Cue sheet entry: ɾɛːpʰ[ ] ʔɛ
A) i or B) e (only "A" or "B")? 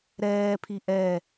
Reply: A